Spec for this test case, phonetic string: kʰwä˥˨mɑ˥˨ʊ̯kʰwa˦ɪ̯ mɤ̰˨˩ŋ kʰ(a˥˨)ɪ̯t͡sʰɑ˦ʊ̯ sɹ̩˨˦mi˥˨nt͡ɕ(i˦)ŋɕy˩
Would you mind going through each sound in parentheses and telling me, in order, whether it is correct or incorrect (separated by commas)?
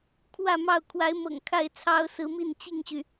correct, incorrect